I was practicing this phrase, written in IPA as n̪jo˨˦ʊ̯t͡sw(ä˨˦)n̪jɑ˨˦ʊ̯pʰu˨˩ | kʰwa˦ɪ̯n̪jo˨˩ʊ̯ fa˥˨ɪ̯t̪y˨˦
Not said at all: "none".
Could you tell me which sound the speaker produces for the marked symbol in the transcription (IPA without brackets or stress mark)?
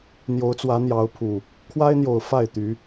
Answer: ä˨˦